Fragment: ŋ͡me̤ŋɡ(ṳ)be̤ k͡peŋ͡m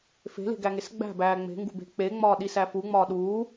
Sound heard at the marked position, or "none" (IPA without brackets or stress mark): ṳ